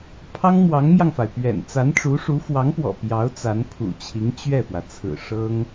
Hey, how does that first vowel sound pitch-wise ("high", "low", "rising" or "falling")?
high